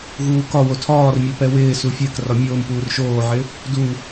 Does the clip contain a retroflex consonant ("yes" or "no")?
no